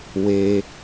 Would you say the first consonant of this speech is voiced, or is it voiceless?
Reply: voiced